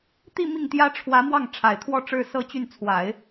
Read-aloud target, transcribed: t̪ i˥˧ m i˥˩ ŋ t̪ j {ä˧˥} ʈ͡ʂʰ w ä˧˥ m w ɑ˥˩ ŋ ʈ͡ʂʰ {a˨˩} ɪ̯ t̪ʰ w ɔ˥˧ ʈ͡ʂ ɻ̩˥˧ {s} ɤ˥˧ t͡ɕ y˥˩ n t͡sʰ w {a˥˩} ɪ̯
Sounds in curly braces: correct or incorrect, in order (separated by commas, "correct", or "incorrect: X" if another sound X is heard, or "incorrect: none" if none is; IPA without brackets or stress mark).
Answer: incorrect: ä˥, correct, correct, incorrect: a˨˩˦